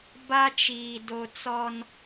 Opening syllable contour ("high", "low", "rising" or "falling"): high